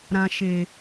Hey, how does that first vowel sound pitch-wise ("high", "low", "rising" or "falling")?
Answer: low